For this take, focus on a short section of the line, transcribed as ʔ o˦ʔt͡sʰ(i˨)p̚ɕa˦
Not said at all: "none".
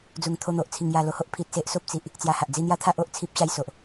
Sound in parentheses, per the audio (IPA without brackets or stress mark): i˦